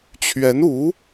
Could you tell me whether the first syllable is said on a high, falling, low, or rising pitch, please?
rising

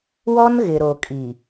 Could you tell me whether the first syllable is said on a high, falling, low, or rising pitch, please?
high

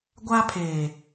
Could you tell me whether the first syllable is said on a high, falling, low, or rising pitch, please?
high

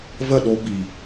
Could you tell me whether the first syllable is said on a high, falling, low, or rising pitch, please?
falling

